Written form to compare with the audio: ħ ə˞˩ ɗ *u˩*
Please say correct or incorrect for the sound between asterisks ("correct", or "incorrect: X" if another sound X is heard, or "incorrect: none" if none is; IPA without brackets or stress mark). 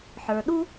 incorrect: u˥